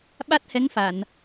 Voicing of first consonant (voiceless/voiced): voiced